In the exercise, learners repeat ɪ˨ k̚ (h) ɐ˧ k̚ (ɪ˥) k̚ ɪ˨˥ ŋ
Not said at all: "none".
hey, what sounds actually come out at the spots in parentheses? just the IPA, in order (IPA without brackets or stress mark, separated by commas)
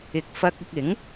f, ɪ˧